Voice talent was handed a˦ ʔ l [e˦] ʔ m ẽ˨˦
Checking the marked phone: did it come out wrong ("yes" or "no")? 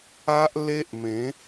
no